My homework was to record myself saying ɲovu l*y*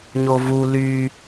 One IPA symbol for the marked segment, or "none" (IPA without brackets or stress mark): y